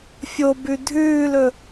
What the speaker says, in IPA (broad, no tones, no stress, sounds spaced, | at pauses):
fʲ o b ʉ dʱ ʉː l ɵ